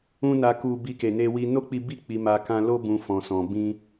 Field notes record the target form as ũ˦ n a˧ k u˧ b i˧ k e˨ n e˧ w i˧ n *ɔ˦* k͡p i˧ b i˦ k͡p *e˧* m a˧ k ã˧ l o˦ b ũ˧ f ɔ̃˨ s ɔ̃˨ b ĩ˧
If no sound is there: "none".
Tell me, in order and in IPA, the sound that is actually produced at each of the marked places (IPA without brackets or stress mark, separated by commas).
o˦, i˧